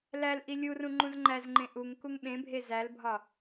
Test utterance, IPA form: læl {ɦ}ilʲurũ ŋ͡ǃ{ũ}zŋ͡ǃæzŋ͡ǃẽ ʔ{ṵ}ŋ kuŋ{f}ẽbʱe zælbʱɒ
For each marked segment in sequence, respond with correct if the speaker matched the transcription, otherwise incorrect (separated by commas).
incorrect, correct, incorrect, incorrect